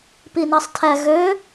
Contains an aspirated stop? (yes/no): yes